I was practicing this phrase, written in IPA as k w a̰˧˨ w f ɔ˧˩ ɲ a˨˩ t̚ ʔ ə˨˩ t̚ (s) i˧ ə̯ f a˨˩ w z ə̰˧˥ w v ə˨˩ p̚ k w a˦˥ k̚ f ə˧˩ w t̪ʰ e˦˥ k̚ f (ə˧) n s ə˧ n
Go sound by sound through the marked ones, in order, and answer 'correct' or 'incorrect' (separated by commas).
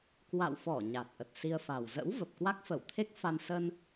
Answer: correct, incorrect